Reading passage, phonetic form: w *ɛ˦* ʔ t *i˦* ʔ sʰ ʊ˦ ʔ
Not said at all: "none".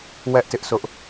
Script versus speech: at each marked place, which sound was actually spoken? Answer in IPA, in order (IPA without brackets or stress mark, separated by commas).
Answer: ɛ˦, ɪ˦